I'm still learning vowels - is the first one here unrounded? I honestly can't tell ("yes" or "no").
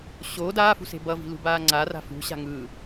no